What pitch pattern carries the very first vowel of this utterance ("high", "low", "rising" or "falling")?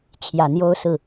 low